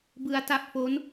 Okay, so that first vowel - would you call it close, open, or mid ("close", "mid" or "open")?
close